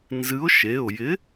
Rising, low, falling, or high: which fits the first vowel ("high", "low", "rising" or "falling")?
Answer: rising